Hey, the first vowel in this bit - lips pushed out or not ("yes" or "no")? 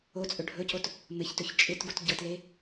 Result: yes